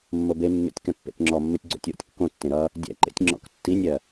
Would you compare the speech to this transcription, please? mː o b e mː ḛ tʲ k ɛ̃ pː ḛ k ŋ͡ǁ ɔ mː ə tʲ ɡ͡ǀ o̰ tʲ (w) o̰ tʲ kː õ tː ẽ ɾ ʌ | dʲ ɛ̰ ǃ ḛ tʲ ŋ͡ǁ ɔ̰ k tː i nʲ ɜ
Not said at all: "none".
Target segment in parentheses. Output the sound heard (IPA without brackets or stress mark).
w